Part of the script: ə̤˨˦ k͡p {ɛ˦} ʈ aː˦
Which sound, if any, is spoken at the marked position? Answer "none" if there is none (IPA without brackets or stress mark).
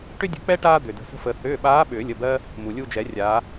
ɛ˦